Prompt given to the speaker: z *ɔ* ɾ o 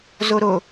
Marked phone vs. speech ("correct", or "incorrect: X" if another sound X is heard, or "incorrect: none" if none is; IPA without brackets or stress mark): incorrect: o